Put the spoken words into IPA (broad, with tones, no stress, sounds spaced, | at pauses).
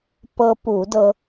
p ɤ˧ p u˧˩˧ d ɤ˧